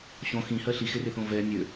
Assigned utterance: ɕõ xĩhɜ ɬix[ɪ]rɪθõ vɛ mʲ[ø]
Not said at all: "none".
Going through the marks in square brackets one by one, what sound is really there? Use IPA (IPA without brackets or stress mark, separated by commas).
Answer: ɪ, ø